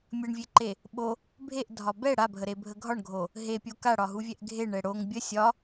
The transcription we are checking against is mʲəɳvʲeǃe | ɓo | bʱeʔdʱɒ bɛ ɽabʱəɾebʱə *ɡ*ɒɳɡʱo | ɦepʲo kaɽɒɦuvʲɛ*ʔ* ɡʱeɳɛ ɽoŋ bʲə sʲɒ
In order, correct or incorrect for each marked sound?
incorrect: ɡʱ, correct

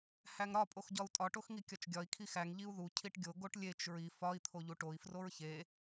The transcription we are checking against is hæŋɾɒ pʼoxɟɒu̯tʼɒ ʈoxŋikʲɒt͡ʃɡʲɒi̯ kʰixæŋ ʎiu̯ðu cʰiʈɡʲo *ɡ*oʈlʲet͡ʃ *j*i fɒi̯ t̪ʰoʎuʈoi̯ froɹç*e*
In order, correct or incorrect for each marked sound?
correct, incorrect: ɹ, correct

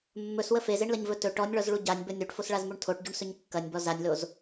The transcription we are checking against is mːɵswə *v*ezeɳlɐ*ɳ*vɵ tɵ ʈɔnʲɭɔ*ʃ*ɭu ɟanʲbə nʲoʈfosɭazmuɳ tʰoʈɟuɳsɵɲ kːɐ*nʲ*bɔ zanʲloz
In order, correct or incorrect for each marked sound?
incorrect: f, incorrect: ɲ, incorrect: z, correct

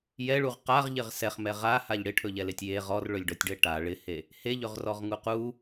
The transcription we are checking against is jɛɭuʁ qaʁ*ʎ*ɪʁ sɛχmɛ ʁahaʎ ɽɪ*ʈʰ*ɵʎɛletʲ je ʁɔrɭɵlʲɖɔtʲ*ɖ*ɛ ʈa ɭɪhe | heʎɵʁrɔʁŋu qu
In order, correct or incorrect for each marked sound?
correct, correct, correct

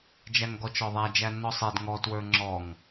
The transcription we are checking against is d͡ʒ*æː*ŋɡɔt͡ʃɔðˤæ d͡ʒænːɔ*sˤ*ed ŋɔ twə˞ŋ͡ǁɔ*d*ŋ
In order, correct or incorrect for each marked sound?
incorrect: æ, correct, incorrect: none

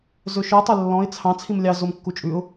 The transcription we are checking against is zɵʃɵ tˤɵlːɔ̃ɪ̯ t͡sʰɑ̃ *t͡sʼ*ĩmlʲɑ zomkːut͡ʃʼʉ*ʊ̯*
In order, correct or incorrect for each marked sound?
incorrect: t͡sʰ, correct

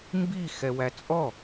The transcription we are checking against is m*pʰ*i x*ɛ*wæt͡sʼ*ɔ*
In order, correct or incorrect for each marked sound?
incorrect: b, correct, correct

